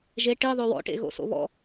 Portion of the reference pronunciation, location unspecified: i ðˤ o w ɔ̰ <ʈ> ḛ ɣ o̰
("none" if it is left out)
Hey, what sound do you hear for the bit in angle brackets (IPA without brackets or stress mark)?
ʈ